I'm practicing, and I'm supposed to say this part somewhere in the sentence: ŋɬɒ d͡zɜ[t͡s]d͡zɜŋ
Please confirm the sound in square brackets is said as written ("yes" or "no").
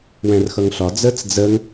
yes